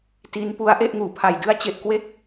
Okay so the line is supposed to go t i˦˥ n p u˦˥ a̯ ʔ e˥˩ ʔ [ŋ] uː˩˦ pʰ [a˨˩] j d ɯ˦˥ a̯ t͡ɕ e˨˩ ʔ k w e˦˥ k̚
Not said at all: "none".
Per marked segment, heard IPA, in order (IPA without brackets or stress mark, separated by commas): ŋ, a˨˩